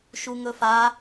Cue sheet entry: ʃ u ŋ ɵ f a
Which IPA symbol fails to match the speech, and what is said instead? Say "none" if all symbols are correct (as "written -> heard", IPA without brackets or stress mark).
none